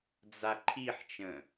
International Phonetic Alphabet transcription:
d͡z a ǃʰ i ħ t͡ʃ ə̃

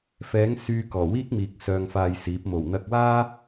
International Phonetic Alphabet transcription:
f ɛː˨˥ ŋ s yː˧ k ɔː˨˩ w iː˥ k̚ m iː˨ k̚ s œː˧ ŋ f aː˧ j s iː˨˥ p̚ m o˨˩ w n̪ ɐ˧ k̚ w aː˥

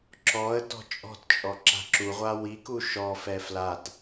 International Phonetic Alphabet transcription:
ǁ ɔ ə̯ t ɔ̤ t͡ʃʼ ɔ̤ t t͡ʃʼ ɔ ǁ a̤ ǁ u ʁʷ a w i k u ʃ ɔ f ɛ f l a t

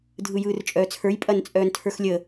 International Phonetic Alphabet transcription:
dʱ ɯ j ɯː r t͡ʃʼ œː t͡sʰ ə˞ j pʼ ɐ n t͡sʼ œː n tʰ ə˞ x lʲ ə

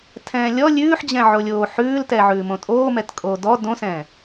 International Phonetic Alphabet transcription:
tʰ ɛ̃ː lʲ ɔ lʲ ʉː ħ d͡ʑ ɛ̃ ʕ o lʲ oː ħ ʉː l t ɛ ʕ ʉː m õ tʼ oː m ɛ t kʼ oː d ɔ d õ s ɛ̃ː

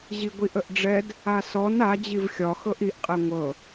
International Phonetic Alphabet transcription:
ʑ i ɡʷ i ʔ ə ʔ ɖ͡ʐ ɛ d | a s ɔ n a d͡ʑ i v xʲ ɒ x ɤ ʔ i ʔ qʼ ɛ ŋʷ ɤ

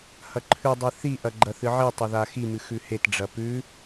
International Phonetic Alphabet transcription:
h ɐ ǃʰ ʉ dˤ i θ i ʔ ɐ ɡ͡ǃ ɐ θ ɨ ʕ i tˤ ɐ ð a x i m ɨ x ʉ h e t ɖ͡ʐ ɐ p ʉ

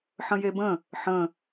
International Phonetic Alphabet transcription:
ħ ə̃ j e b ə̃ | ħ ə̃

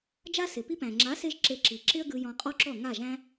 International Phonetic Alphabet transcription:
d͡ʒ a˦ s ɪ˨ p i˧ p æ̃˨ ŋ͡ǁ a˨˦ s e˧ ʒ ǁ e˧ ǁ i˨ ǁ ɪ˦ ə̯ ɡ ɯ˧ j ɔ̃˧ qʼ ɔ˦ ǁ ɔ˦˨ ŋ a˦˨ ʒ æ̃˦

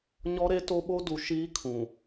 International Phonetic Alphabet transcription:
ɲ ɔ˦ ɾ e˦ t o˦ ɓ o˦ d u˨ ʃ iː˦ kʰ ũ˨

